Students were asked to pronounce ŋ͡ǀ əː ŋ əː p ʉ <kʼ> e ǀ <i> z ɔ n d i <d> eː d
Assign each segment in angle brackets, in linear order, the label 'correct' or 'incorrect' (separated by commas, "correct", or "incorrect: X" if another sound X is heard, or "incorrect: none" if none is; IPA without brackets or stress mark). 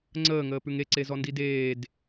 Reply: incorrect: ŋ, incorrect: e, correct